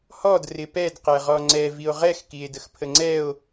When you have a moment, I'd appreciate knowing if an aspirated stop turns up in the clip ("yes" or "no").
yes